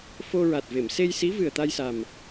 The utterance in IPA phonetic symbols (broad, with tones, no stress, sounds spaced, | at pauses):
f o˧ ɹ a˨˩ t̚ v e˨˩˨ m s e˧ j s i˧˥ v ɨ˨˩ ə̯ t̪ a˧ j s a˨˩ m